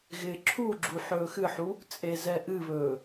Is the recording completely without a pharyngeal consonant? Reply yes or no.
no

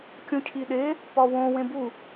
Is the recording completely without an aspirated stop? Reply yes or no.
no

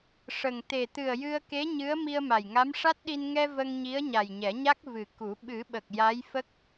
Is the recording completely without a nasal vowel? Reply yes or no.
yes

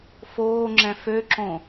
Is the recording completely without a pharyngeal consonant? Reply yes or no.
yes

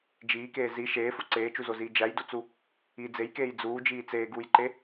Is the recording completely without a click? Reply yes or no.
no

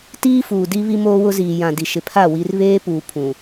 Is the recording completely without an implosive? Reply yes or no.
yes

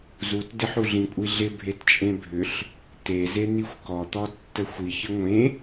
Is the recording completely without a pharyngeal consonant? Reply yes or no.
no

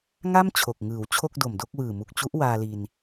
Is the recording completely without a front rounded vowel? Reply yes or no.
yes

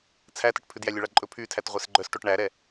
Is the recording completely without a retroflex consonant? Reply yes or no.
no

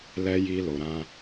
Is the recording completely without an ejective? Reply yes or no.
yes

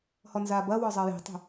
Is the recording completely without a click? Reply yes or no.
yes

